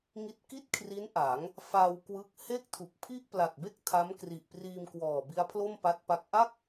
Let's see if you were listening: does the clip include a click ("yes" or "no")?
no